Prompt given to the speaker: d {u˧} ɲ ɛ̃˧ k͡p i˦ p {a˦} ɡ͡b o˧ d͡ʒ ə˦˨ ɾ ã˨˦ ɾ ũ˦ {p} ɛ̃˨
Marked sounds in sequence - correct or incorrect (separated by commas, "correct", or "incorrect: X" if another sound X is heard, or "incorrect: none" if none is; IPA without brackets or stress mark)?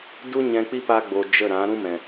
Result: incorrect: u˦, correct, incorrect: m